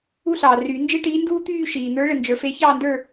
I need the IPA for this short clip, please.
u˥ ɬ ɑː˨ r yː˨˩˦ n d͡ʒ e˥ ʈ iː˧˥ n d uː˥ t̪ yː˥˧ ʃ iː˨ n̪ ə˞˧˥ ɭ ɘ˨ n d͡ʒ ə˞˨ f e˧˥ ç ɑː˥˧ n d ə˞˥˧

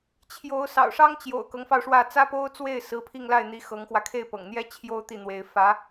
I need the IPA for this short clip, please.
t͡ɕʰ j o˧˥ ʊ̯ s ɑ̰˨˩ ʊ̯ ʂ ɑ˥ ŋ t͡ɕ j o̰˨˩ ʊ̯ k ɤ˧˥ ŋ f ɑ˧ ʊ̯ ʂ w ä˥˩ t͡s ä˥ p o˥ ʊ̯ t͡s w e˥˩ ɪ̯ s ɹ̩˧˥ pʰ i˥˧ ŋ l a˥˩ ɪ̯ n̪ i˧˥ x ɤ˧˥ ŋ x w ä˧ kʰ e˥˩ ɪ̯ p ɤ̰˨˩ ŋ n̪ j ɛ˥ t͡ɕʰ j o˥ ʊ̯ t̪ i˥˩ n̪ w e˧˥ ɪ̯ f ä˧˥

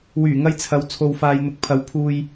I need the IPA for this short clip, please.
w yː˨˩ ŋ ɐ˧ j t͡sʰ ɐ˨˧ w t͡sʰ o˨ w f aː˨ j n̪ ʊ˨˥ k̚ pʰ ɐ˨˥ w pʰ uː˨ j

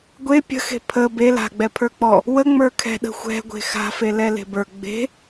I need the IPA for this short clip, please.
ɡʷ e pʲ ə̤ x e̤ pʰ ə b e l a̤ ɡ͡b ɛ pʰ ə˞ k͡p ɔ | w ə ŋ͡m ə˞ kʰ ɛ̤ ɗ ə̤ xʷ ɛ̤ ɡʷ e̤ x a̤ f e l ɛ l e̤ b ə˞ ɡ͡b e̤

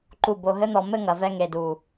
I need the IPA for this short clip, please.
ǃ u˧˩ b o˧˩ ɦ ɘ˥ n̪ ɔ˩˧ m ɘ˥˧ ŋ ɐ˩˧ v ɛ˧ ŋ e˧˩ d u˧˩

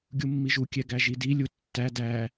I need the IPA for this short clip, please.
ɡʲ u mː i ʒ u kʲ ɛ ɡ æ ʒ i d i lʲ u tː æ d æ

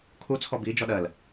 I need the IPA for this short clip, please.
kʰ u t͡sʰ ɔ b i d͡ʒ ɔ ɗ ɜ l

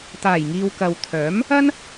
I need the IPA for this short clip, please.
t̪ aː˨˩ j ŋ iː˨ w k ɐ˨ w t̪ʰ œː˨˥ m | ɐ˥ n

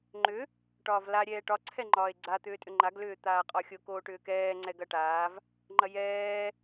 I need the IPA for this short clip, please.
ŋ͡ǃ ʏ | ʈ ɒː v l a ɾʲ ɛː ʈ ɒ ǀʰ ɛ ŋ͡ǃ ɒː e̯ ɡ͡ǀ a t̪ ʏː tʼ ʏ ŋ͡ǃ a ɡ l ʏː t̪ aː qʼ ɒ xʲ o k oː ʈ ʏː k ɛː ŋ͡ǀ ɛ ɡ ɐ ʈ aː v | ŋ͡ǃ ɐ j ɛː

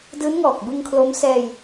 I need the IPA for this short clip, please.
d ɯː˦˥ n ŋ ɔː˨˩ k̚ b ɯ˧ ŋ kʰ l o˦˥ m s ɛː˧ j

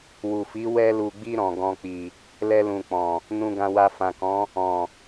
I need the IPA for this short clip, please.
w u˨ f i˨˦ w ɛ˧ l u˨ ɡ͡b i˧ ɾ ɔ̃˨ ɡ ɔ̃˧ k͡p i˨ | l ɛ˧ l ũ˨ k͡p ɔ̃˨ | n ũ˧ ɡ ã˧ w a˧ f ã˨ k ɔ̃˨˦ | ɔ̃˨

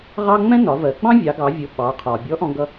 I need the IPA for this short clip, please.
ʁ ɑ˥ ŋ͡m ɛ̃˥ n ɒ˩˧ v ɜ˩˧ ɡ͡b ɑ̃˥ vʲ ɑ˩˧ ɡ ɑ˩˧ vʲ ʊ˩˧ ɓ ɑ˩˧ qʰ ɒ˩ bʲ ɔ˧˥ ʔ ɔ̃˧ ɡ ʌ˧

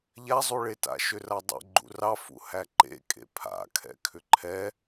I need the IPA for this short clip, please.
ʎ a zˤ u ɭ e t a̰ ʃ ʏ r a dˤ ɛ̰ ɡ͡ǃ ṵ r ɑ f ṵ h æ ǃ ḛ kʼ ḛ pʰ a̰ kʰ ɛ̰ kʰ ʏ ǃʰ ɛ

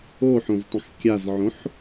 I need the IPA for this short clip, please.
o ħ õ z tˤ ə̃ x kʲ a z ʕ õ ħ

